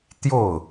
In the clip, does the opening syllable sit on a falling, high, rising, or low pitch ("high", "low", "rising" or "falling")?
falling